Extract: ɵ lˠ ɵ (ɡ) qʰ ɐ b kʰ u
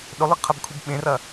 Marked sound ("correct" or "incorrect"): correct